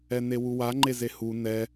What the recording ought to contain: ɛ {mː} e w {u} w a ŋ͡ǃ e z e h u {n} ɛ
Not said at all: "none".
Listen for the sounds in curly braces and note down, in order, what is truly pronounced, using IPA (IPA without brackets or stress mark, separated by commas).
n, u, n